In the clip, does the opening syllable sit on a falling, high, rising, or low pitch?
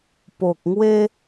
low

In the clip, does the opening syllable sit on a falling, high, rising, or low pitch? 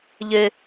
high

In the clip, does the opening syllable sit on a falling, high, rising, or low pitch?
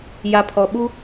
low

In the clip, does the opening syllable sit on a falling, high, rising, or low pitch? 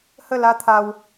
falling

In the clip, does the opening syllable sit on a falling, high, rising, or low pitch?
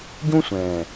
high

